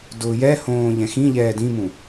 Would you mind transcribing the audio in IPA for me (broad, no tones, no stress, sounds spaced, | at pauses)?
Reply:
d ʊː j ɛ h õː ʎ ɛ̃ x ĩ ʎ ɛː d ĩ m ũ